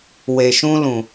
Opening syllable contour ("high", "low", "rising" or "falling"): low